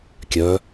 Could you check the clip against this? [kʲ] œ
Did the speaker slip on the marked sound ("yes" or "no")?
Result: no